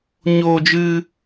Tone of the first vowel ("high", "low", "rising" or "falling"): high